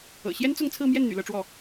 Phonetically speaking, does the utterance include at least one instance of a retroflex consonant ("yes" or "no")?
yes